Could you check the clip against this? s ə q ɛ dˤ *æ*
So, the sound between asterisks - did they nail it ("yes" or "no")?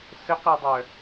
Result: no